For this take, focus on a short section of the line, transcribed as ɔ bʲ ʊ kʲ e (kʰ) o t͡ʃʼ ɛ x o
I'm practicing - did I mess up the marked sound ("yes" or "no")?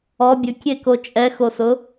yes